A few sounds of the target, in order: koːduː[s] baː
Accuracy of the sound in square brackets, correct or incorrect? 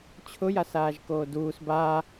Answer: correct